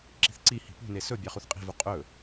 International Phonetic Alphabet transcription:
ǁ i̤ θ ǀ i h i̤ p ṳ n e s ɵ bʲ ɑ χ u θ qʼ i̤ v u qʼ ɵ

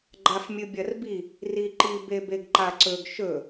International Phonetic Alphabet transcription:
ɡ͡ǃ a f mʲ ɨ bʲ ɐ r b i | r i ǃ i b e b e ɡ ǃ a ǀ ɵ ɡ ʃ ɵ

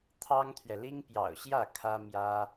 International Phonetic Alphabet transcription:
t̪ʰ ɑ˥ ŋ t̪ʰ ɥ ɛ˨ l i˥ ŋ p j ɑ̰˨˩ ʊ̯ ɕ j ä˥˩ kʰ ä˥ m j ä˥

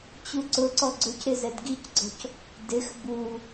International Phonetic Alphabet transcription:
t͡ɕ u ǀ ʊ ǀ ɔ ɡ͡ǀ ʊ c ɾ ɪ z ɛ d ɡ i c ɡ͡ǀ ɔ̤ c | d ɪ x b u

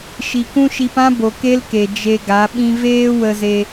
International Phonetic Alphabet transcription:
ʃ i˨ k ũ˦ ʃ i˧ p ã˦ b o˨ k e˦ l k e˨ d͡ʒ e˧ ɡ a˨˦ ɓ ĩ˦ v eː˦ w ə˧ z e˧

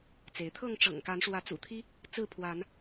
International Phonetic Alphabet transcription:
t͡s e˨˦ ɪ̯ t̪ʰ ɤ˥˨ ŋ ʈ͡ʂ ɤ̰˨˩ ŋ k a˨˦ n ʂ w ä˨˦ t͡s ṵ˨˩ t̪ʰ i˦ | t͡s ɹ̩˥˨ pʰ w a˨˦ n

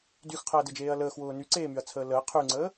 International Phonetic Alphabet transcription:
d y x qʰ əː d e d͡ʒ eː ɐ̯ l əː x w ʊː n y ǀ eː m y ɐ̯ t͡sʰ əː l əː qʰ y ŋ͡ǀ əː

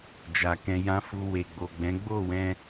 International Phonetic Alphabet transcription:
d͡ʒ a˨ k ɛ̃˧ j ã˦ f u˧ w e˨ ɡ͡b o˨ ɡ͡b ɛ̃˨˦ ɡ͡b o˦˨ w ɛ̃˧

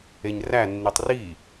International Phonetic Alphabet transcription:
e ɲ r æ nː i tˤ r i

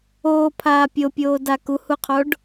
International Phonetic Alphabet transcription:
oː pʰ aː pʲ o pʲ oː d a k u h u qʰ o ɖ

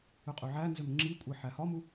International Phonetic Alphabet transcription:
ø qʼ ø ʕ æ n z ø m ŋ͡ǁ i kʷʼ e ħ æ h ɒ m u

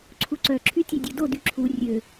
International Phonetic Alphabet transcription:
ǀʰ u ǀ œ ǁʰ y tʲ ø dʲ o d o d y ǁʰ u rʲ ø

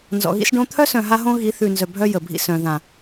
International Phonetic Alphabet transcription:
n z ɔ̰˨ ɣ ḭ˦ s ɖ õ˦ t̪ʰ œ˦ s œ̃˨ ɦ a˦ ɦ õ˦ ɣ i˨˦ θ ʉ˨ n z œ˨ bʱ œ˦ j ə˨ bʱ ḭ˦ s œ̃˨ ð ã˨

